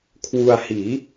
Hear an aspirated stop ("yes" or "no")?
yes